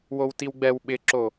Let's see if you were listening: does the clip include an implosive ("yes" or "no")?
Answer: yes